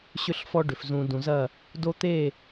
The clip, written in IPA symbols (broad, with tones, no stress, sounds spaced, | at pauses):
ɕ ʏ˦ ɬ f ɔ˦ ɖ ʏ˨ f z ũ˨ d ũ˨ z ɐ˦˨ | d o˦ t̪ e˦˨